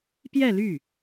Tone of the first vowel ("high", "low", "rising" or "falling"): falling